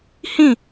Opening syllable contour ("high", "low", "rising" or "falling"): falling